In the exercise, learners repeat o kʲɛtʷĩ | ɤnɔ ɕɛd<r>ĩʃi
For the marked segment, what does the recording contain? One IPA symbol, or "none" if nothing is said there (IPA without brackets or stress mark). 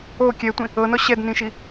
n